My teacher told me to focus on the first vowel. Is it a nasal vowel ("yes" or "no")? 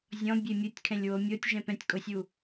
yes